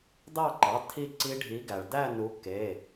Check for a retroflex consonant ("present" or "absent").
present